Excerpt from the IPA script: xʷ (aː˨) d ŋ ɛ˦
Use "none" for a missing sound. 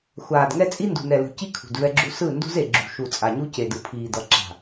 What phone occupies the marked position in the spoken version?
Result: aː˨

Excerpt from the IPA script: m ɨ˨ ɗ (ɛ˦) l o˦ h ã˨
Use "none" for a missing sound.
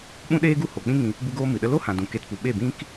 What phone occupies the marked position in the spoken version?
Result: ə˦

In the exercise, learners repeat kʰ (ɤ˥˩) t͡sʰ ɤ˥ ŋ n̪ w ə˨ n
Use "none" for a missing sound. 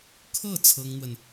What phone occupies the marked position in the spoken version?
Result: ɤ˥˩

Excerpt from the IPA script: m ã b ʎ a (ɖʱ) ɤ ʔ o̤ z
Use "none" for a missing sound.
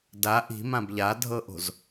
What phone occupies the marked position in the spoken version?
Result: dʱ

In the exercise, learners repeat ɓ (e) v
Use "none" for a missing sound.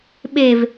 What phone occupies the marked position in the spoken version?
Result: e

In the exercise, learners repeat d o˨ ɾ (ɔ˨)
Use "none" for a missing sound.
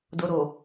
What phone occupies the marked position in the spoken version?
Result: o˨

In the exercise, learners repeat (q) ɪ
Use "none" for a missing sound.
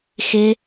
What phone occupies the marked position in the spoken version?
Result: x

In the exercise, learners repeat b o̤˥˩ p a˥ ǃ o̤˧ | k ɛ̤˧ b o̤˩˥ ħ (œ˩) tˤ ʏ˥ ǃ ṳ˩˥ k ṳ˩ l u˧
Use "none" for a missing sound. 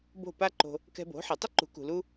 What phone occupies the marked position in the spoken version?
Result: ɛ˩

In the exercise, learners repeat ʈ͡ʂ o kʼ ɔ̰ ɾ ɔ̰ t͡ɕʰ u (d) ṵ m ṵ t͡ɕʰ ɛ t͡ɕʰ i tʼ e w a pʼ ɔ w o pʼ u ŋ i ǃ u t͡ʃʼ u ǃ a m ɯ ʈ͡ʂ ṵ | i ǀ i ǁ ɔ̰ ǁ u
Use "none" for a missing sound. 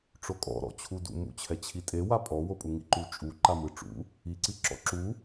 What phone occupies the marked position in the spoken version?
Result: d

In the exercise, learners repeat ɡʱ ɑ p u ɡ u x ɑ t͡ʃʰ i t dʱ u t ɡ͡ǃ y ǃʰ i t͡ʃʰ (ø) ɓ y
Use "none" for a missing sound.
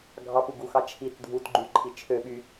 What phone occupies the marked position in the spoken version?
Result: ø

